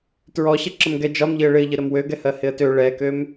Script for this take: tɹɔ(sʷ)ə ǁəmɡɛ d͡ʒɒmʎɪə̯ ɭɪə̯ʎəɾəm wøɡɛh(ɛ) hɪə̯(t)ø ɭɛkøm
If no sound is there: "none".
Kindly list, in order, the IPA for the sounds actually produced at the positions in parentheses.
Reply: ɕ, ɜ, t

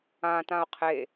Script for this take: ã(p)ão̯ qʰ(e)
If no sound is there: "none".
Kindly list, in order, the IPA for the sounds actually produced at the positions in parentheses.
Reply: t, e

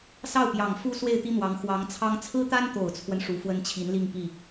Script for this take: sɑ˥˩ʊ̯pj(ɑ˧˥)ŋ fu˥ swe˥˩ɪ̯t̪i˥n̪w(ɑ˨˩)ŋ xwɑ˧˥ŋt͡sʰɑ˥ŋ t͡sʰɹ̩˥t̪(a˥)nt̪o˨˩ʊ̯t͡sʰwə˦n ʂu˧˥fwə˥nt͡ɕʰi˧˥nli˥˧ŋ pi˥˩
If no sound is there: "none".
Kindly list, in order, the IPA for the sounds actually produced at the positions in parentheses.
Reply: ɑ˨˩, ɑ˧˥, a˥

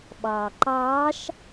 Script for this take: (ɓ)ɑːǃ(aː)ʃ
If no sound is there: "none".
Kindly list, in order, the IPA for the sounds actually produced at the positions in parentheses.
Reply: ɓ, ɑː

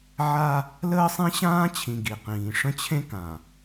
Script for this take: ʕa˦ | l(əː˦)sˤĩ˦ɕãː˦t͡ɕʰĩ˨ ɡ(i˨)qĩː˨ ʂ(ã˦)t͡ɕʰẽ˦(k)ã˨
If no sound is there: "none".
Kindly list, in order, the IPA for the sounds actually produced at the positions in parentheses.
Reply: əː˦, i˨, ə̃˦, k

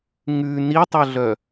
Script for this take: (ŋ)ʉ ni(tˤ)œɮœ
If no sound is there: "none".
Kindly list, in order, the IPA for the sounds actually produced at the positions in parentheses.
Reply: ŋ, tˤ

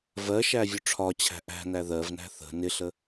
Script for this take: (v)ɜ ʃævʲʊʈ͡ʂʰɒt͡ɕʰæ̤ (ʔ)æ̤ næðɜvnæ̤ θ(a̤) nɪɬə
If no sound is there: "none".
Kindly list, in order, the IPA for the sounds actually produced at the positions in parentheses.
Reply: v, ʔ, ə̤

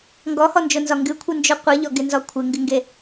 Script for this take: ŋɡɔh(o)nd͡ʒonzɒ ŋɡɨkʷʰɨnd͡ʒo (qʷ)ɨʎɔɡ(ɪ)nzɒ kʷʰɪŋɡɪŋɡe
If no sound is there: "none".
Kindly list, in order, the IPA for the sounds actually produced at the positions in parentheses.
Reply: ɔ, qʷ, ɪ

